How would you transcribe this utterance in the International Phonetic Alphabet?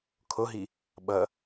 kʰoɦi | ɓʌ

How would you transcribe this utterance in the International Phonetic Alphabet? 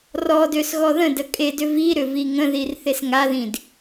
rɔdøs ɣɔðə̃də kʼedʏ vi ɾʏviŋə̃ðir θesŋaðĩd

